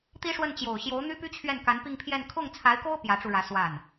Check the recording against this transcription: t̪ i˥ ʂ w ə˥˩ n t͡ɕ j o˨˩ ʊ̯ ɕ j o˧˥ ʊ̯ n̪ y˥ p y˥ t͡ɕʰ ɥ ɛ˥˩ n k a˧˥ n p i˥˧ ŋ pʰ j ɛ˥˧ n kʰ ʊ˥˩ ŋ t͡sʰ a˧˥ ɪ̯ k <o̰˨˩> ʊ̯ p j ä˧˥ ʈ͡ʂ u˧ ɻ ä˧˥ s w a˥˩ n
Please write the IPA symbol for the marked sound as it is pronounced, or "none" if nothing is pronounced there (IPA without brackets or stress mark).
o˥